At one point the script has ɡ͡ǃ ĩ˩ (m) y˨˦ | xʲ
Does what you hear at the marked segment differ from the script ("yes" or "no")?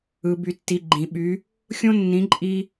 yes